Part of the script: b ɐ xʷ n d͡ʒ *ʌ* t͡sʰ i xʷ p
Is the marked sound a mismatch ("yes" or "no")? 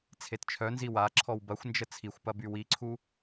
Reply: yes